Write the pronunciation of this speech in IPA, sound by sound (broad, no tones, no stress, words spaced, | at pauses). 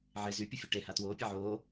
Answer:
ʕe zy pʲəfʲøʈe hatwoː pʲaʕoː